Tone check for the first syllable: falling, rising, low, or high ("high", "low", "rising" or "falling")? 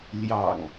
low